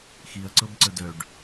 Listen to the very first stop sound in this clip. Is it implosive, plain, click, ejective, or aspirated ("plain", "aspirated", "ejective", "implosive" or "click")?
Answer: click